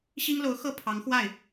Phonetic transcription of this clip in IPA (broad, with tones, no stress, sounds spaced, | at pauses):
ɕ i˥ ŋ l o˧˥ ʊ̯ x ɤ˥˩ pʰ ɑ˧˥ ŋ x w a˥˩ ɪ̯